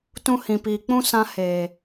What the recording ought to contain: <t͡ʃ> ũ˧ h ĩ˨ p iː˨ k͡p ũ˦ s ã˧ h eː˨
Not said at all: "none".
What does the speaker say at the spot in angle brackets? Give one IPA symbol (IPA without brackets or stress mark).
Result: t